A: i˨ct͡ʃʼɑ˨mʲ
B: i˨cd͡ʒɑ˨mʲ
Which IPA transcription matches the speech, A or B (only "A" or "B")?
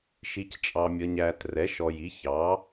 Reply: A